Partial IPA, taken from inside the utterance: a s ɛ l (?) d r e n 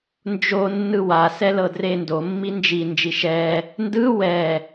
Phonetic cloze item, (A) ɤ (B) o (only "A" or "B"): A